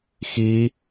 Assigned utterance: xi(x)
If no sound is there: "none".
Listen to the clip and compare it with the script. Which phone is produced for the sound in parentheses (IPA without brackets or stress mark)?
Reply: none